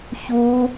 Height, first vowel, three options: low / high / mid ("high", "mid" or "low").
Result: high